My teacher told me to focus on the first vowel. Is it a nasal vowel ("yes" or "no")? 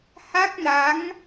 no